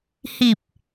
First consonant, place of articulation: glottal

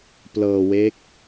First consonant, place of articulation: labial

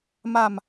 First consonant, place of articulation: labial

